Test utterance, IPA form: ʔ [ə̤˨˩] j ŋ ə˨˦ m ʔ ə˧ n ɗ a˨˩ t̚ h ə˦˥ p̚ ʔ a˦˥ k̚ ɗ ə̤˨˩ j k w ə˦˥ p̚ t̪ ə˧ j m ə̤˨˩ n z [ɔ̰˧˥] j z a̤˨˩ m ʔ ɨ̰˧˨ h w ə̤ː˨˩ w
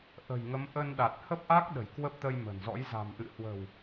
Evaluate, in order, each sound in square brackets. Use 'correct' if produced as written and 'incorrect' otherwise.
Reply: correct, correct

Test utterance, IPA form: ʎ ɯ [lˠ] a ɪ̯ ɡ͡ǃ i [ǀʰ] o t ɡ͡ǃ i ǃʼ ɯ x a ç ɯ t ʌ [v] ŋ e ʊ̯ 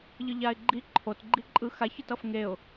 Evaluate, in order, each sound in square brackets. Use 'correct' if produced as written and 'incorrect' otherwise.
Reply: incorrect: ʎ, incorrect: ǃʰ, incorrect: f

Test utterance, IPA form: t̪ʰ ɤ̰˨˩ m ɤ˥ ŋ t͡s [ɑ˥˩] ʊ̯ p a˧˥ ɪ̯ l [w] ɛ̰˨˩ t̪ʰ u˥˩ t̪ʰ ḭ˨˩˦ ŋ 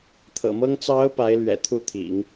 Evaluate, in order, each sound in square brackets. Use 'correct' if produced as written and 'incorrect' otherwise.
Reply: incorrect: ɑ˧˥, incorrect: ɥ

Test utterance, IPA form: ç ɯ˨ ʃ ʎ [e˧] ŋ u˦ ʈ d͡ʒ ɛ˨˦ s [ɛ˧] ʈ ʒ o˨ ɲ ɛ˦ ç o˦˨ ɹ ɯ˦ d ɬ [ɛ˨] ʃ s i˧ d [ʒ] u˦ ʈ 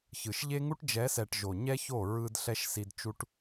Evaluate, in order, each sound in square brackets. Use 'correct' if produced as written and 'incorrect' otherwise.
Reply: incorrect: e˦, incorrect: ɛ˨, incorrect: ɛ˦, incorrect: t͡ʃ

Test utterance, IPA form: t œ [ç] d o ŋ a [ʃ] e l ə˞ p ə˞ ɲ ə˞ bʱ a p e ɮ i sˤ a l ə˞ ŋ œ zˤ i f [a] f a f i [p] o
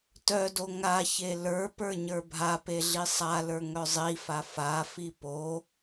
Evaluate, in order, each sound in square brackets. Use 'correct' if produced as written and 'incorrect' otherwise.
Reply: incorrect: none, incorrect: ç, correct, correct

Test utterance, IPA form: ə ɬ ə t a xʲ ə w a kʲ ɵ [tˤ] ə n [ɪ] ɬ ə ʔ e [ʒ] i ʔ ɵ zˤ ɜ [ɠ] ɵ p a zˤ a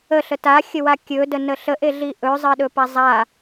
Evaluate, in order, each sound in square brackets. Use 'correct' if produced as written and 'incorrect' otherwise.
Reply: incorrect: d, incorrect: ə, incorrect: ɮ, incorrect: ɗ

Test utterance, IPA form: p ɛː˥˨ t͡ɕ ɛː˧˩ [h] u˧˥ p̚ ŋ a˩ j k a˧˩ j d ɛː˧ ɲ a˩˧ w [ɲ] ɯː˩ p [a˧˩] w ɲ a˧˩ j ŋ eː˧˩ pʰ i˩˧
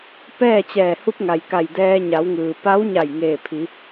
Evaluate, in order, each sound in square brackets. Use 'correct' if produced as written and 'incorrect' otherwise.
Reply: correct, incorrect: ŋ, incorrect: a˧˥

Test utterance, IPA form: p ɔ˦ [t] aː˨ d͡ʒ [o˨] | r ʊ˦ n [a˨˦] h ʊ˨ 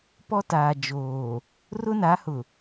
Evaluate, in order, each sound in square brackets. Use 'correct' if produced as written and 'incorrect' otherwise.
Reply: correct, incorrect: oː˨, correct

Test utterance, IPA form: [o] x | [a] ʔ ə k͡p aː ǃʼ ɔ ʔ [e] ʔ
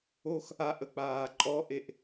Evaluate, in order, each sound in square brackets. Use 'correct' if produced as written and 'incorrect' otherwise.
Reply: correct, correct, correct

